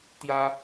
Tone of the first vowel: high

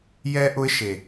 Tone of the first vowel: high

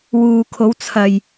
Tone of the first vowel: low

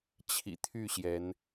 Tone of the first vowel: low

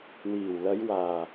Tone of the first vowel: low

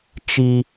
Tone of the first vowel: high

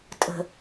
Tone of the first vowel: low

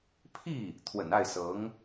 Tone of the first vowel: falling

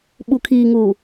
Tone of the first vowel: low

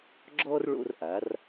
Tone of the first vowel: high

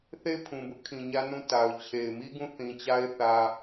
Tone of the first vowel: falling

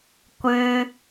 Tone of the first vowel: high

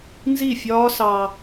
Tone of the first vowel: falling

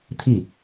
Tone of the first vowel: falling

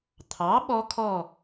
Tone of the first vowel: rising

